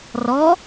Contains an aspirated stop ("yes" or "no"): no